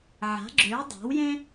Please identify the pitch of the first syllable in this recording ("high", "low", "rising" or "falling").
rising